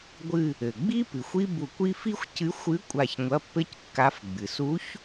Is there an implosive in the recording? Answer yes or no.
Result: no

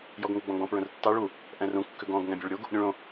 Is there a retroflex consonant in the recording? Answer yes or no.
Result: yes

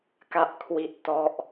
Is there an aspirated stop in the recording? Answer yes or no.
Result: yes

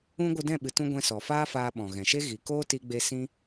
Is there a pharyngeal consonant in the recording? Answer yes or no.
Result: no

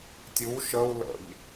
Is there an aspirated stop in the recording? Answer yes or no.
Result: no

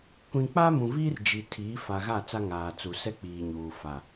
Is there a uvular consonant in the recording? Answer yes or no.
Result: no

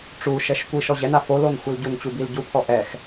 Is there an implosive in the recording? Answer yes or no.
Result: no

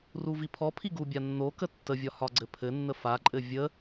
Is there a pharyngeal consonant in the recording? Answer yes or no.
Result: no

